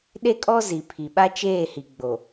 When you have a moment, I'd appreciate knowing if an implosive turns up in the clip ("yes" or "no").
yes